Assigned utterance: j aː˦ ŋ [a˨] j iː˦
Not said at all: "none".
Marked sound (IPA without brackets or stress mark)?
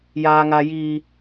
a˦